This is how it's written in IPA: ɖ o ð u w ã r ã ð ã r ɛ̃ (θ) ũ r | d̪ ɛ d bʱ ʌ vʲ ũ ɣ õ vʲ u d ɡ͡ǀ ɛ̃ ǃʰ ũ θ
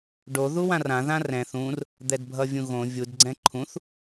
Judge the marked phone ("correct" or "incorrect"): correct